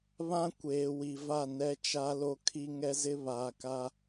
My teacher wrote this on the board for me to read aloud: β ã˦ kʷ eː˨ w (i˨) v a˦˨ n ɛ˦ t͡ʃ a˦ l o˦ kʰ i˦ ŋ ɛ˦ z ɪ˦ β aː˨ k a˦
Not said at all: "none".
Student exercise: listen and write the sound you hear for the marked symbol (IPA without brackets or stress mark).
i˨